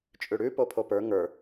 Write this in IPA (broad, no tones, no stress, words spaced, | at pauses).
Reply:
t͡ʃʼʉɽʉ popʰopə˞ ŋə˞